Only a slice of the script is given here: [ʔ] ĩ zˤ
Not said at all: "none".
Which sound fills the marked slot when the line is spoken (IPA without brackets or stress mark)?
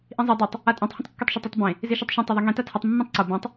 ʔ